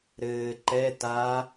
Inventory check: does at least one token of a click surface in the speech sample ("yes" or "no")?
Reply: yes